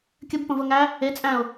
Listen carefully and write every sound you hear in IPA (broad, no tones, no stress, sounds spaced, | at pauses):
kʲ ə b p ə̃ v ə ŋ æ | e t͡sʼ æ̃ ʊ̯